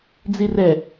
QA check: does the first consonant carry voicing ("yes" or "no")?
yes